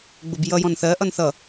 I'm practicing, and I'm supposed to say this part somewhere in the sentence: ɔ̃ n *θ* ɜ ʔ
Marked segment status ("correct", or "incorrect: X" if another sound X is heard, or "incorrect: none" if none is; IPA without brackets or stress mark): correct